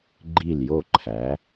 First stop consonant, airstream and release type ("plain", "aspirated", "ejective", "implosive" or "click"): click